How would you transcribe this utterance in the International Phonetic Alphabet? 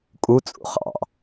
kʼ u t͡sʼ ṵ χ ɑ̰

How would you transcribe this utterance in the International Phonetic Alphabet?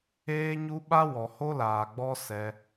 eː˦ ɲ u˦ ɓ a˦ w ɔ˨ h o˦ l aː˨ ɡ͡b ɔ˦ s ɛ˧

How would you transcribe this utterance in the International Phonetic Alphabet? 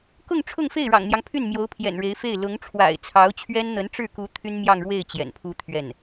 k ʊ˥˧ ŋ ʈ͡ʂʰ ʊ˥˧ ŋ f e˥˩ ɪ̯ ɻ ɑ̰˨˩ ŋ n̪ j ɑ˦ ŋ pʰ y˥˩ n m j o˧˥ ʊ̯ pʰ j ɛ̰˨˩ n ɻ e˧˥ ɪ̯ f e˥˩ ɪ̯ l ʊ˧˥ ŋ ʈ͡ʂʰ w a̰˨˩ ɪ̯ t͡sʰ ɑ˧˥ ʊ̯ t͡ɕʰ ɥ ɛ˥ n n̪ ə˧˥ n ʈ͡ʂ ɻ̩˥˩ k u˧˥ t̪ʰ y˥ n m j ɑ˥˧ ŋ ɻ w e˥˩ ɪ̯ t͡ɕ j ɛ̰˨˩ n pʰ u˥ t̪ʰ ɥ ɛ˥˩ n

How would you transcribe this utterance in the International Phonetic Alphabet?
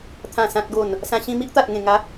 t̪ʰ ã˨˩ s ã˨ t̚ ɡ o˨˩ n | s ã˧ ɕ ĩ˧ m i˦ ʔ t̪ a˨ t̚ ŋ ẽ˨˩ ŋ a˨˦

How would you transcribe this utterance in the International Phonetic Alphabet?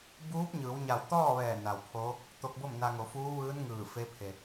b uː˧˥ p̚ ɲ ɯː˩˧ w ɲ a˧˩ w t̪ ɔː˥˨ ʋ ɛː˧˩ n a˩ w pʰ oː˧˥ | t̪ o˧ k̚ b o˥˨ m n a˧ ŋ o˩˧ f uː˧˥ ʋ ɯː˧˥ n ŋ ɯː˧˩ f e˧˥ pʰ e˩

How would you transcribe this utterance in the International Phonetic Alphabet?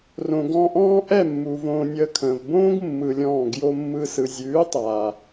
r õ˨ ɡ ɔ̃˧ ʔ ɔ̃ː˦ ʔ ɛ˦˨ mː u˨ v õː˧ nʲ əː˧ kʰ ə̃ː˨ v b õː˦ ɡ mː ɯ˧ lʲ ɔ̃ː˦˨ ɡ j o˦ mː ɯ˦ s ɯ˨ zʲ ʉː˨˦ tˤ a˨

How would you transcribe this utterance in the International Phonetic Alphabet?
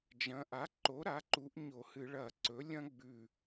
d͡ʒ ɐ̃˩˧ ʔ a˩˥ ǃ o˩˥ ɾ a˩˥ ǃ u˩˧ ʔ ɲ o˧˩˧ h ɨ˧˩˧ ɭ ɐ˧˩˧ ǀ ɵ˩˥ lʲ ɐ̃˥ ɡ͡b ʉ˧˩

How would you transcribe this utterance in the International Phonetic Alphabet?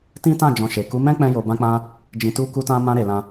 t ĩ˦ t ã˦˨ d͡ʒ ɔ̃˧ ʃ e˨ k u˨˦ m ɛ̃˦ k͡p ɛ̃˧ j o˧ b ã˦ k͡p ã˦ | d͡ʒ ĩ˧ t u˦ k u˦ t ã˦ m ã˧ ɾ e˨ l ã˧

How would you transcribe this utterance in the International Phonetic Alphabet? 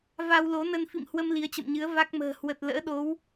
v a˧ w l o˨˦ n ə˧ n f ḭ˧˨ m h w ə˧ m l i˨˦ ə̯ t͡ɕ ə̰˧˨ m ɲ ɨ˨˦ ə̯ v a˦˥ k̚ m ə̤ː˨˩ h w ə˨˩ t̚ l ə̰ː˧˥ ɗ o˨˦ w

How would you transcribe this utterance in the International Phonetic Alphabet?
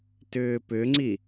t ʏː p ʏ ŋ͡ǀ i

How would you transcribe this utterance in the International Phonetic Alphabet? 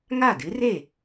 ŋ a˥˩ d ɨ˧˥ r e˥˩

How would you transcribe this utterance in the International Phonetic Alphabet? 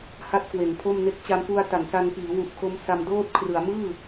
h a˥˩ t̚ k w e˩˦ n pʰ o˥˩ m n e˥˩ k̚ t͡ɕ a˧ m f u˧ a̯ t a˩˦ n s a˧ n p iː˩˦ w u˨˩ ʔ kʰ o˦˥ m s a˧ m d oː˥˩ t̚ kʰ r ɯ˩˦ a̯ m ɯː˥˩

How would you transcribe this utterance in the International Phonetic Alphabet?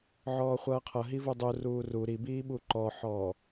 ʕ ɔː χʷ ʌː qʰ ʌ ɦ i v u dˤ u r uː r u ɾ i b iː ɓ u ǃ ɔ ħ ɔː

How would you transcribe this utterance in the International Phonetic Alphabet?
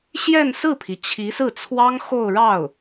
ɕ j ɛ˥˧ n s ɹ̩˥˩ pʰ i˩ t͡ɕʰ i˧˥ s ɹ̩˥˩ t͡sʰ w ɑ˥ ŋ x o˥˧ ʊ̯ ɻ ɑ˥˩ ʊ̯

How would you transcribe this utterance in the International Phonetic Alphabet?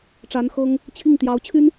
ʈ͡ʂ a˧˥ n x ɤ˥ ŋ | t͡ɕʰ i˥˩ ŋ t̪ j ɑ˧˥ ʊ̯ t͡ɕʰ y˥ n

